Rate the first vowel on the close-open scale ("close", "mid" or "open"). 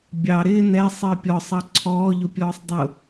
open